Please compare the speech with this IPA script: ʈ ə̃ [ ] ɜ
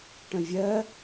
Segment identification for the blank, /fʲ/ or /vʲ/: vʲ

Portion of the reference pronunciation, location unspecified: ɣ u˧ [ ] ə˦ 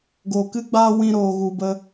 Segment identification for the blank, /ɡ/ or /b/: b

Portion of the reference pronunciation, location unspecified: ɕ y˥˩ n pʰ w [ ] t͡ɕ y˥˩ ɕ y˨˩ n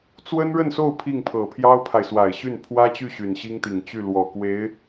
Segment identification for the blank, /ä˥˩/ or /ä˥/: ä˥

